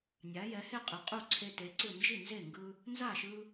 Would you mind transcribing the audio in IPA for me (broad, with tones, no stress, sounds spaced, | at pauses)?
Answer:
nʲ a˨˦ j ɛ˨˦ h e˥˨ qʼ ɯ˨˦ qʼ u˥˨ ǀʰ e˦ t e˨˦ ǀ ɯ˥˨ n d͡ʒ i˥˨ n z e˥˨ ŋ ɡ ɯ˦ | n z a˥˨ ʃ ɯ˦